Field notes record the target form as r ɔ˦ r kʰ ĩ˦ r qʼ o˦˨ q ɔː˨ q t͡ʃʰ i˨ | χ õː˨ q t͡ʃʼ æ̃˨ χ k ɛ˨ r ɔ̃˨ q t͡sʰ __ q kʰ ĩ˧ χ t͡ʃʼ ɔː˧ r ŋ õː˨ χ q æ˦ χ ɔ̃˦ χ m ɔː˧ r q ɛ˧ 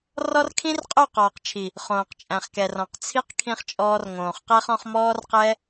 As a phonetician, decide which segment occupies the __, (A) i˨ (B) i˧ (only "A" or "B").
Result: B